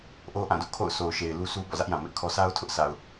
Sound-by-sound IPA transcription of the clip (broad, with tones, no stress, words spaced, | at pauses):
ʔo˦ʔã˦˨dʊ˦ʔkʰo̰˦˨ʊ̯ sʰo˨ʊ̯ʃe˨ɪ̯ lu˦sʰu˦ bɔ̰˦˨zä˦ʔjã˨ mɪ˦ʔkʰɔ˦ sʰa˦ʊ̯tʰʊ˦ʔ sʰa˨ʊ̯